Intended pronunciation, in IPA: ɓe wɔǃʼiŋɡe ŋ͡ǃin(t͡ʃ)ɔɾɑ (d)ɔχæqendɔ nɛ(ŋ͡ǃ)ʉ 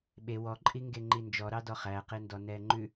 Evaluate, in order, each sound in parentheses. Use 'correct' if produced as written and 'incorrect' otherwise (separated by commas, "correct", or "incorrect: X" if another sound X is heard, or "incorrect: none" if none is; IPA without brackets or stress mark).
incorrect: d͡ʒ, correct, correct